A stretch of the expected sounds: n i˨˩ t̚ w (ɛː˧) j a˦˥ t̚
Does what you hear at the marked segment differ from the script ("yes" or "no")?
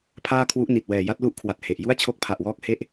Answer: yes